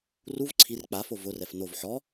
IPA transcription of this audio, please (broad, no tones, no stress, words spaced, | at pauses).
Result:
ruv ǀʰir k͡pafo vʊrɛf nov ħɔ